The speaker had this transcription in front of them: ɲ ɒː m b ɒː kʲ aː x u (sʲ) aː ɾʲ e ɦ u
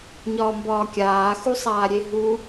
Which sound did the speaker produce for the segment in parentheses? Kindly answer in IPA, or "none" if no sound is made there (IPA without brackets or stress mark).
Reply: sˤ